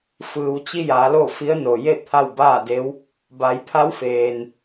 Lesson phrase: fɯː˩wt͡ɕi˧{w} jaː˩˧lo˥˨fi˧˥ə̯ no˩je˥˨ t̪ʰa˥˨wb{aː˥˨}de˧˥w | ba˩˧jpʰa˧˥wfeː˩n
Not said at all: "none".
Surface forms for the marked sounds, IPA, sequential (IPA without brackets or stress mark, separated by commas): none, aː˥˨